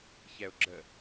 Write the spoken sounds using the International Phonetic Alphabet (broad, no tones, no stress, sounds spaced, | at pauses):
ç ɛ ʊ̯ ɡ͡ǁ ə